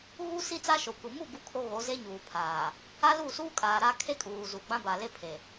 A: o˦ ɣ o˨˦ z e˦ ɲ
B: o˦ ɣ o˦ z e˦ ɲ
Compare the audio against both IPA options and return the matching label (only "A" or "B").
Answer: A